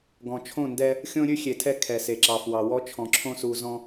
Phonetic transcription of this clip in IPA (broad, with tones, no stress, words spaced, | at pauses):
ɡɔ̃˨ t͡ʃʰõ˦˨ndɛ˦ | xʲõ˦ɾʲʉ˦xʲe˨tʰɛ˦ kʰɛ˨se˨ǁɑ˨fwɑ˨ wɔ˦t͡ʃʰɔ̃˨ ǁʰõ˦su˨zɔ̃˦